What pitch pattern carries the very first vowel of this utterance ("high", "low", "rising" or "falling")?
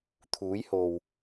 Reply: rising